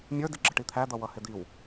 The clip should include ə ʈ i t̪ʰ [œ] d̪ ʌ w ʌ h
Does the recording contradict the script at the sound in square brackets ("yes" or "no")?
yes